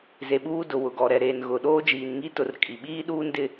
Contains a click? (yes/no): no